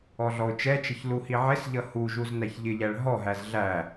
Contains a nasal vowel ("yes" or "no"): no